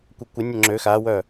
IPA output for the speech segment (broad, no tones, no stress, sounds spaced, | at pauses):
kʷ œ kʷ ə nʲ ə ŋ͡ǁ ø x a w œ